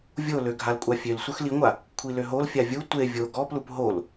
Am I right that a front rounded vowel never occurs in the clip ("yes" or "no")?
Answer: no